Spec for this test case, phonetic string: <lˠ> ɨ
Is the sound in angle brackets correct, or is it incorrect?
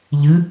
incorrect